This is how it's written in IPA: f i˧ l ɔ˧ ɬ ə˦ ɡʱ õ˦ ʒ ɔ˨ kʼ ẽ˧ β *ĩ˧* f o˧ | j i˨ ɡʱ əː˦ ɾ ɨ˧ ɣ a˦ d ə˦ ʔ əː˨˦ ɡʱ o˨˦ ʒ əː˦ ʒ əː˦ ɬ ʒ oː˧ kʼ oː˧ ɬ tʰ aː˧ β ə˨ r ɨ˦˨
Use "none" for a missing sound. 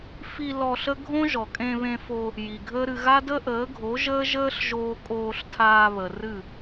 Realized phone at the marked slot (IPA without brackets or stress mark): ẽ˧